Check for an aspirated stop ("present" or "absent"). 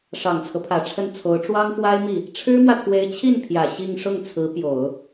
present